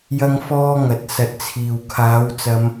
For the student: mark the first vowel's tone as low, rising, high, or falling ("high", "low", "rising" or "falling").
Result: high